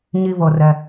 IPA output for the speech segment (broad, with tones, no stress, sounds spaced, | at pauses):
ɲ i˥ v ɤ˧ r ɛ˧